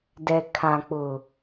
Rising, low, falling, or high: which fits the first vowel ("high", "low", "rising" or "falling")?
low